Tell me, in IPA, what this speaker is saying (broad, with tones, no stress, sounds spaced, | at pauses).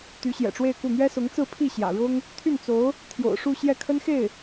t̪ y˧˥ ɕ j ɛ̰˨˩ ʈ͡ʂ w e˥˧ ɪ̯ k u˥˩ n̪ ɥ ɛ˥ s ʊ˧˥ ŋ t͡s ɹ̩˥˧ pʰ i˥˩ ɕ j ä̰˨˩ ɻ ʊ˥ ŋ | t̪ʰ y˥˩ n t͡s o˧˥ ʊ̯ | t̪ʰ j o̰˨˩ ʊ̯ ʂ u˥˧ ɕ j ɛ˥˩ kʰ ə˥ n x e˥˩ ɪ̯